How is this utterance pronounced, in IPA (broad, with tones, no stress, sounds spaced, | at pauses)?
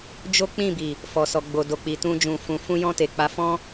d͡ʒ o˦ k͡p ĩ˦˨ b i˨ | f ɔ˨ s ɔ˨ ɡ͡b o˨ d o˨ k͡p i˨ t ũ˧ d͡ʒ ũ˨ f ũ˨ f ũ˧ j ɔ̃˧ t e˨ k͡p a˨˦ f ɔ̃˦